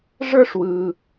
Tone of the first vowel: high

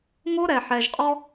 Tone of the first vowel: high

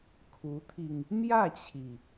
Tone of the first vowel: rising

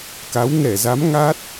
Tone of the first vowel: rising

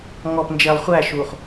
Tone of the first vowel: low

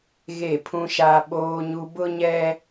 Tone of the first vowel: falling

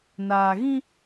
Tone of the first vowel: low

